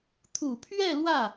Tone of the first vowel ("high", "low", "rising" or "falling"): low